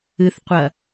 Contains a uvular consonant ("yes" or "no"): yes